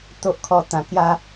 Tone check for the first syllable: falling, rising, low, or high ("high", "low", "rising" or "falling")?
low